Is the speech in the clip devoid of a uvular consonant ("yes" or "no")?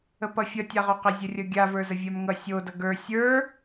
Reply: no